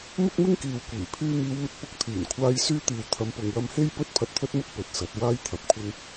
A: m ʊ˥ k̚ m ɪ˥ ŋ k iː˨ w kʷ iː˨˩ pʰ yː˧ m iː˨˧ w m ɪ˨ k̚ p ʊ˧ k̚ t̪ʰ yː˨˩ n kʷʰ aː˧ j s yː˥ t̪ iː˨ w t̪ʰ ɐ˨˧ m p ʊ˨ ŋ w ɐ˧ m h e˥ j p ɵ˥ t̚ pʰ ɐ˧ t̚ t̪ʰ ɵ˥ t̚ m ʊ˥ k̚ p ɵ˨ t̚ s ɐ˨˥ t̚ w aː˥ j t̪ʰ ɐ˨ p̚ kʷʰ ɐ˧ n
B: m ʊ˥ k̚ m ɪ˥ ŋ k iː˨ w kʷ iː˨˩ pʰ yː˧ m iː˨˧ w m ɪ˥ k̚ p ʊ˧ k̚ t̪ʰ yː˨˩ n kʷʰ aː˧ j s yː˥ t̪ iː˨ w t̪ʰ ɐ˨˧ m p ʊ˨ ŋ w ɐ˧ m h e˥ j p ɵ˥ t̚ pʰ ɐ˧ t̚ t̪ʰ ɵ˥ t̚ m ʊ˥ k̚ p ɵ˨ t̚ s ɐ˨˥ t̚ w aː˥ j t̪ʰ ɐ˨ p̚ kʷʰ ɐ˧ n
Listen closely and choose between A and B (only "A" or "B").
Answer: A